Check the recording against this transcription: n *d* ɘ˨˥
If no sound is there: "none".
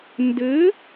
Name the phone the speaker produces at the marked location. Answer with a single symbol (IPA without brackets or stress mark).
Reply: d